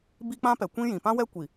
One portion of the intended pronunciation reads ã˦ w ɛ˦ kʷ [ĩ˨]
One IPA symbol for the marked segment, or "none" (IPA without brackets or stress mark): i˨